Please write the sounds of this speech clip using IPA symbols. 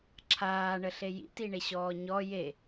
ǁʰ aː ɳ ə ɬ e j ḭ t i ɳ e ɕ ɔː ɲ ɔ j e

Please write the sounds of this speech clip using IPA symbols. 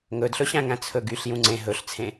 ŋ ɵ d ɬ ɵ ɕ æ̃ ŋ æ̃ t͡sʰ ɵ ɡ y ɬ j ũ ŋ͡ǀ ẽ ɦ ɵ ɬ t͡sʰ ẽ

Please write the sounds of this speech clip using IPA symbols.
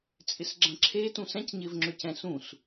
t͡sʼ ɪ s ɡ͡ǁ ɐ̃ ǁʰ e t ũ s ɛ̃ c ɲ ɪː v ŋ͡ǁ ʏ c ɛ̃ s ũ s

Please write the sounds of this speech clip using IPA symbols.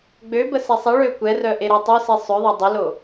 ɡ͡b ø b ə s ɛ sˤ e ɭ ø kʷ ɛ r œ ʔ e ɾ a tˤ o s i sˤ ø ðˤ a dˤ ə l o

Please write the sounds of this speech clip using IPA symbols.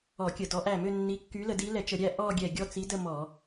ɔ˧˩˧ kʲ ə˧˩˧ d ɔ˨˦ ʔ æ˧˩ m ø˥˧ nː i˨˦ kː y˨˦ l ə˧˩˧ d i˨˦ l ɛ˧˩˧ t͡ʃ ə˧˩˧ ɾʲ æ˥˧ ʔ ɔ˥˧ ɡʲ ɛ˧˩ ɡʲ ɔ˥˧ t͡s i˨˦ d ə˥˧ m ɔ˧˩˧

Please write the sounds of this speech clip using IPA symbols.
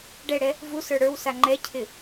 ɖ ɛ ɽ ɛ | v u s ə˞ ɽ ə˞ w s a ŋ͡ǃ ɛ cʰ ɪ

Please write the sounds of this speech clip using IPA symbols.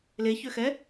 l e ç ø x ɛ

